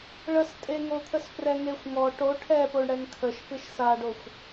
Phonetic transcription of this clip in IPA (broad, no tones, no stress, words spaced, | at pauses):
ɭəstʼeŋot̪ʰəs prɛŋexʷŋɔ ʈo ʈʰɛpoɳɽɛŋ kʰəʃ pɨʃsaɖoxʷ